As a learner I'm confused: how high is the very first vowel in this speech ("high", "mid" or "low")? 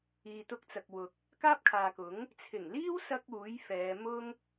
high